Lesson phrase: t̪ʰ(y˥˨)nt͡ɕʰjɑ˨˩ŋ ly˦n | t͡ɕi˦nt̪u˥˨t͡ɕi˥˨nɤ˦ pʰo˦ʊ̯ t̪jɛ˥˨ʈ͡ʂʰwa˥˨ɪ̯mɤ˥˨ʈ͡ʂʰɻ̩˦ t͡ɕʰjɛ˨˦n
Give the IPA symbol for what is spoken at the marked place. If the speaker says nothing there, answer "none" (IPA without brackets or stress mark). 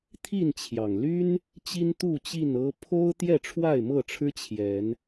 i˥˨